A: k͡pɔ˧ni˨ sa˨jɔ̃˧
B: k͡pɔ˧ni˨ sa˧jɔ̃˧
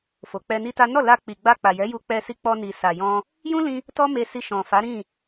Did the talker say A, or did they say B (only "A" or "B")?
A